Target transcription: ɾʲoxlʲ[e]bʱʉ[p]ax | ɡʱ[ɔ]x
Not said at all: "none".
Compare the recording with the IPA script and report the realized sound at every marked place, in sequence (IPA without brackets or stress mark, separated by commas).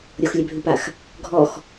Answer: ɛ, p, ɔ